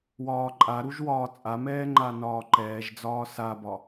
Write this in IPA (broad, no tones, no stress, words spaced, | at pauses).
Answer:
wɒːǃʼaɾuʒ wɒːt͡sʼamɛː ŋ͡ǃanɒːǃɛːʒd͡zɒː sabɒ